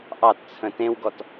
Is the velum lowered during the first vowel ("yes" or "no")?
no